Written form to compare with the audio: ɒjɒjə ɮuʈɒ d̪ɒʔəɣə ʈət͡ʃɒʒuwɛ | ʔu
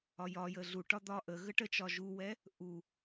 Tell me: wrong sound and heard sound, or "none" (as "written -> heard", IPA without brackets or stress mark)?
none